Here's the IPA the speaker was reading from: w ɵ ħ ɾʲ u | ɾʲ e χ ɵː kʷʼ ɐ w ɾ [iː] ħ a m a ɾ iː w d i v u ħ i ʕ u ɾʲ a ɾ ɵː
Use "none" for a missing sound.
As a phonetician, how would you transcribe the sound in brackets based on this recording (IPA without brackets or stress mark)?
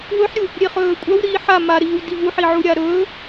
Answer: iː